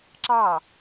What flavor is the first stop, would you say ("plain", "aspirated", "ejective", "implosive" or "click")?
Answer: click